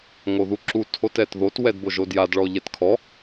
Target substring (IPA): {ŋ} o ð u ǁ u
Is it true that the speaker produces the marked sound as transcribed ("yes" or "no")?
yes